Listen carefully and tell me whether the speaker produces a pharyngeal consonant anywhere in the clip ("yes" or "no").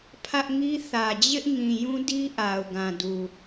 no